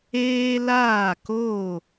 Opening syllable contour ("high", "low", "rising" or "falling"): high